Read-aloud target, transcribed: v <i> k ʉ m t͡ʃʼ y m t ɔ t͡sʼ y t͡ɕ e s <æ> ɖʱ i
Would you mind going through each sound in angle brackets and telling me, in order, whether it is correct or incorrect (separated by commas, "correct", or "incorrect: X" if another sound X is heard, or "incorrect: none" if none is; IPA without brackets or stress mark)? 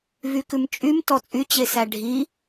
incorrect: y, correct